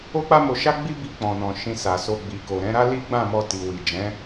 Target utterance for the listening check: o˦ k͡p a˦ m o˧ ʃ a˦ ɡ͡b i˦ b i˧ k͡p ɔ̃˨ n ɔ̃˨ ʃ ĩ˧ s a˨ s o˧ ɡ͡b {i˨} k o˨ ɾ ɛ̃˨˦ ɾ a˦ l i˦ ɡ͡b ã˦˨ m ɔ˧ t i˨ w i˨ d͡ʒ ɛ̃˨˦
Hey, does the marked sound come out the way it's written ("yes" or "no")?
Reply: yes